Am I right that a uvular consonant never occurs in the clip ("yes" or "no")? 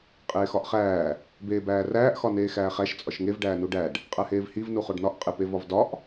no